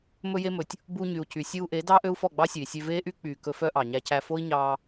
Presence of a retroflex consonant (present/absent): absent